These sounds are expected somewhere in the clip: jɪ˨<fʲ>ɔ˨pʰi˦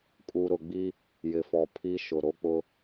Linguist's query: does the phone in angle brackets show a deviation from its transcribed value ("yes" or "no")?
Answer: yes